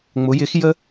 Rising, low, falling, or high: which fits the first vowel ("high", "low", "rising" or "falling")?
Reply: rising